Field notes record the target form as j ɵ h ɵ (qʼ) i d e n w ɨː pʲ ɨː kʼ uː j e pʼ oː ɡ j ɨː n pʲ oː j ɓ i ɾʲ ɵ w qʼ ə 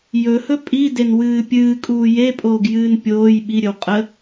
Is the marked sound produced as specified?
no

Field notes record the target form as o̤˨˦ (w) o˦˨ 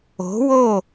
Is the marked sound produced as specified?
yes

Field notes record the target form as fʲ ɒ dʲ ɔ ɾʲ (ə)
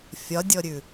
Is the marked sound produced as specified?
no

